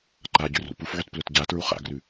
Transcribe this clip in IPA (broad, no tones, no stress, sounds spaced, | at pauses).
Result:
ǃ a ɟ ʉ r ṵ p u f ʕ ʉ t p l ɵ t ɟ a t ɹ u χ a̰ ɡ r ʉ